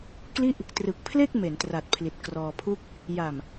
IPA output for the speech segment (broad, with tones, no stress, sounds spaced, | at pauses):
k l i˥˩ ʔ | t r ɯ˨˩ k̚ pʰ l e˥˩ k̚ m e˩˦ n t r a˨˩ t̚ pʰ l i˨˩ t̚ k r ɔː˧ pʰ u˥˩ k̚ | j a˨˩ m